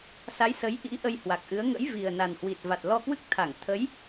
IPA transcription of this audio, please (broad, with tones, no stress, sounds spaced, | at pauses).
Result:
s a˨˦ j s ə˨˦ j ʔ ḭ˧˥ ʔ ə˧ j h w a˨˩ k̚ ʔ ɨ˨˦ ə̯ ŋ ə̰˧˥ j v i˨˩ ə̯ n a˨˩ n h w i˨˩ t̚ v a˨˩ t̚ l ɔ˧ k w ɨ˦˥ k̚ t̪ʰ a˧˩ ŋ t̪ʰ ə˨˦ j